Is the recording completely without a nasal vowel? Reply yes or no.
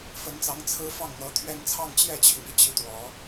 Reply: yes